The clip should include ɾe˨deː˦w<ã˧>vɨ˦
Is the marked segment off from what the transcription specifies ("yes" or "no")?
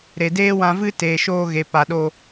no